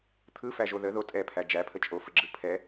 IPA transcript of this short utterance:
t̪ʰ ɯ f æ ʒ o ð ə ð o tʼ ɛ pʰ æ d͡ʒ æ pʰ ə t͡ʃʼ o f ə ɡ͡ǁ ɯ pʰ ɛ

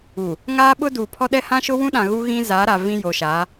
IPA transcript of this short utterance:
u˨ | ŋ aː˦ ɓ ʊ˦ d uː˨ pʰ ɔ˦ ɗ ɛ˦ h ã˦ ʃ ʊ˦ w ũ˦ ɗ ã˨ ɣ u˦ ɣ ĩ˦ z a˨˦ ɾ a˨ v ĩ˦ j o˨ ʃ a˨˦

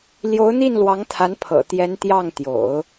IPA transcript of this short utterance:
l j o˧˥ ʊ̯ n̪ i˥˩ n l w ɑ˧˥ ŋ t̪ʰ a˧˥ n pʰ ɤ̰˨˩ t̪ j ɛ˧˥ n t̪ j ɑ˥˩ ŋ t̪ j o̰˨˩˦ ʊ̯

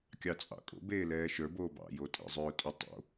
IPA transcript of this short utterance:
kʲ ɑ t͡sʼ ɑ̰ kʼ o̰ b eː l ɛː ʃ ə˞ b oː b ɑ̰ j o tʼ ḛ zˤ ʏː ʊ̯ tʼ ʏ tˤ o̰

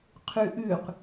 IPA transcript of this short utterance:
qʰ ʉ ʔ ʉ q

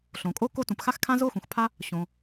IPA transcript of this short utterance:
ɬ õ˩ kʼ o˥ k o˥ t ũ˩ p x a˥ x kʰ ã˥ z o˥ x ũ˩ x pʰ a˥ | ɕ õ˩

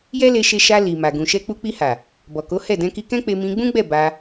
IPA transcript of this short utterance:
j ɛ˦ l e˧ ʃ e˧ ʃ a˧ l i˨ m a˨ ɡ ũ˨ ʃ ɛ˧ k͡p u˧ k͡p i˧ h a˨ | b ɔ˨ k o˨˦ h ɛ˦˨ d ɛ̃˧ k i˧ k ɛ̃˦ k͡p e˧ m ĩ˧ ɡ͡b ũ˦ ɡ͡b ɛ˦˨ b a˧

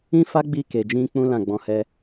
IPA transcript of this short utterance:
ĩ˦ f a˦ ɡ͡b i˧ k e˨ d͡ʒ ĩ˧ k͡p ũ˦ l ã˦˨ ɡ͡b ɔ̃˨˦ h ɛ˦

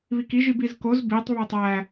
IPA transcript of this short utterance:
β i k i ʒ i b i z k o z b i tˤ β o tˤ æ

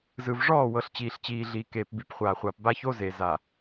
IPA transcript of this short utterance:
z ɯ˨ v ʐ ɔː˦˨ w ɤ˨ ɬ t͡ɕ iː˨ ɬ t͡ɕ iː˨ ɮ iː˨ k eː˨ p b i˨ p χʷ aː˨ χʷ aː˨ p b aː˦ ç o˦ z e˨ z a˨

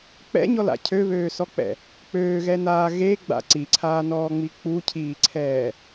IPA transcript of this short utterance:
k͡p ɛ̰ ɲ ɔ l a̰ cʰ ø β øː s ɔ k͡p ɛ̰ | k͡p øː ɣ ɛ n aː ɣ e ɡ͡b a̰ ǀ i ǀʰ aː n ɔː ŋ͡m i k͡p u cʰ iː ǀʰ ɛː

